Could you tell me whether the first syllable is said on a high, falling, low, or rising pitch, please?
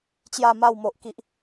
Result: falling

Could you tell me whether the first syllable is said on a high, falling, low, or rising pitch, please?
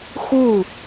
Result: falling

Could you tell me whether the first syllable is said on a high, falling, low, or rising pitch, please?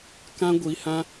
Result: high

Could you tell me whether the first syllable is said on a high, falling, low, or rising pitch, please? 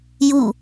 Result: falling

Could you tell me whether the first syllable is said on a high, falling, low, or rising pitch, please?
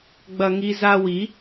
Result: high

